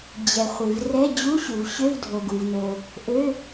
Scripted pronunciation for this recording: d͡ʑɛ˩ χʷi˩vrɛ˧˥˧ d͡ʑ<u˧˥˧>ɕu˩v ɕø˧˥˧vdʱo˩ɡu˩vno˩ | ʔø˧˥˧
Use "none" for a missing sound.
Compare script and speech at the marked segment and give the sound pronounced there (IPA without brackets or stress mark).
u˧˥˧